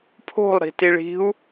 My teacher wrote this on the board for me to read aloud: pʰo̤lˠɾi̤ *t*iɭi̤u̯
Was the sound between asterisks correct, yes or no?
yes